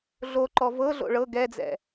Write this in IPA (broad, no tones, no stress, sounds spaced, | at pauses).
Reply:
ɮ o ǃ ɔ v ɤ ɮ o̰ ɭ ɤ ɡ ɛ d͡z ɛ̰